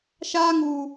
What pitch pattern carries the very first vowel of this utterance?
high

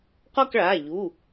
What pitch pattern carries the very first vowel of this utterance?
falling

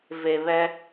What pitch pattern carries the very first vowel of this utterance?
low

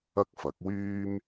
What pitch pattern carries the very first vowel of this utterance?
high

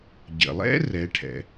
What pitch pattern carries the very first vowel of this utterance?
low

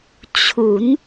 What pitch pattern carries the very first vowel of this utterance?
rising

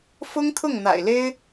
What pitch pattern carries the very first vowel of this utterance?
high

